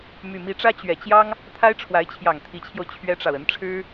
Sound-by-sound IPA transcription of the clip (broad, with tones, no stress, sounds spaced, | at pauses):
m y˨˩ m i˧˥ ʈ͡ʂ ä˥ t͡ɕ ɥ ɛ˨˩ t͡ɕ j ɑ˥ ŋ | t̪ʰ a˥ ɪ̯ ʈ͡ʂʰ w a˧˥ ɪ̯ t͡ɕʰ j ɑ˨˩ ŋ t̪ʰ i˧˥ t͡ɕʰ j o˧ ʊ̯ t͡ɕʰ ɥ ɛ˥ ʈ͡ʂ ɑ˨ ʊ̯ ə˧˥ n ʈ͡ʂʰ ɻ̩˥